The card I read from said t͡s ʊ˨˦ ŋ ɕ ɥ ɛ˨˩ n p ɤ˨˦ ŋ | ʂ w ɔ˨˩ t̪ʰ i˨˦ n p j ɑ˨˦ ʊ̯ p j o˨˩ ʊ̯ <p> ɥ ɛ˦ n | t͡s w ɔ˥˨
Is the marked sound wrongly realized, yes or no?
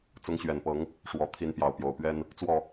no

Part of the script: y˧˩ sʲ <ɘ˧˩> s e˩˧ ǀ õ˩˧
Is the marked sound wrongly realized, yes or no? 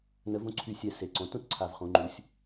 yes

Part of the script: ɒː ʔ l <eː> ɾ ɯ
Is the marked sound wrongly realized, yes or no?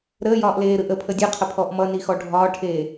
no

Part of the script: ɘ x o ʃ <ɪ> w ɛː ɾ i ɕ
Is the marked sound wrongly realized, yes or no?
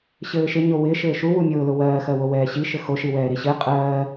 yes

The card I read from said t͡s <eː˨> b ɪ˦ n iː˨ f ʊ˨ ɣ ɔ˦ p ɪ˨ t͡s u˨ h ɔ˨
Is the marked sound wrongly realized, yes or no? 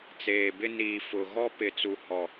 no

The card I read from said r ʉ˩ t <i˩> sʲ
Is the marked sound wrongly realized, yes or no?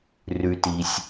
no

